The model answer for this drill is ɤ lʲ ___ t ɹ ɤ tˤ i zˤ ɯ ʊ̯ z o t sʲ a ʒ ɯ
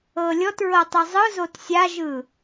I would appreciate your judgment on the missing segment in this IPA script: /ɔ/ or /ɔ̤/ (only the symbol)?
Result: ɔ